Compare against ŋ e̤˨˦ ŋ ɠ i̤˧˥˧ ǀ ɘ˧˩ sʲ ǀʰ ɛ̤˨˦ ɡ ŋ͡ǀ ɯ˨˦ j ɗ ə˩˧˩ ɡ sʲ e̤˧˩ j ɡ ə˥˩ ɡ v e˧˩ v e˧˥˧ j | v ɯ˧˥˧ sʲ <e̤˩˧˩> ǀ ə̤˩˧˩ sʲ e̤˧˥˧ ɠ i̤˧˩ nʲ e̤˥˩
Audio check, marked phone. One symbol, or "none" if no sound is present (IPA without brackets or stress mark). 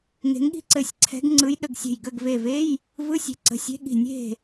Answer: e̤˨˦